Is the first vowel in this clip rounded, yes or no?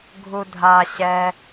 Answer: yes